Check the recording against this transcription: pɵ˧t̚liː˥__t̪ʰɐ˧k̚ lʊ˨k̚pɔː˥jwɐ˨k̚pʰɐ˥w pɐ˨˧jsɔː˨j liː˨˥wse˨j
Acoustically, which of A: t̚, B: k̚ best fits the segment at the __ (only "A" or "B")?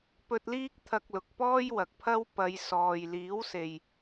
B